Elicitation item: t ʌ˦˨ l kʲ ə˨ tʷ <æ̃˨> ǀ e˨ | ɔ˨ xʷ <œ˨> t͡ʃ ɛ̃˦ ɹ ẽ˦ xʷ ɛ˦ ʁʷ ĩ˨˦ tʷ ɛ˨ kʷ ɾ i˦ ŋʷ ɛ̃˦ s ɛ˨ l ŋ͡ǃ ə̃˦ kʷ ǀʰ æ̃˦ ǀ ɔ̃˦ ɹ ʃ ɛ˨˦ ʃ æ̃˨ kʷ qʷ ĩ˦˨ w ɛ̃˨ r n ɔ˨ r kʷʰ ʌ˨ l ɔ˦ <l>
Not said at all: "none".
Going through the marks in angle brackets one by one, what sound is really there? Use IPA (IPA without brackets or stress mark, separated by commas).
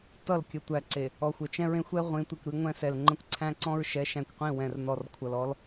æ˨, ə˨, l